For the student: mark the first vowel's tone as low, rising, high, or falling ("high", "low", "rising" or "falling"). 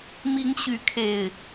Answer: rising